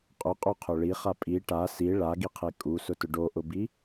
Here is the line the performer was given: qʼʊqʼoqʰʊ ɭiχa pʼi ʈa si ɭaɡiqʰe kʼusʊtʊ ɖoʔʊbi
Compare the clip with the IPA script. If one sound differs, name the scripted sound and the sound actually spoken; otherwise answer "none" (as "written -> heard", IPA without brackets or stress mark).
none